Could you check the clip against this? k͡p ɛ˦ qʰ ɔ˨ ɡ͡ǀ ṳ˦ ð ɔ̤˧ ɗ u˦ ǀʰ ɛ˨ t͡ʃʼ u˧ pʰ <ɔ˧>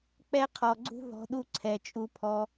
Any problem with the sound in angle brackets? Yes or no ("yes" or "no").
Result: no